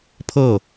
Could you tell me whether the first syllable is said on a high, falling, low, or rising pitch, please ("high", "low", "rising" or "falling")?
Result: falling